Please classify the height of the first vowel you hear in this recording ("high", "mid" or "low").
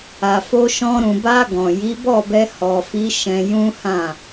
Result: low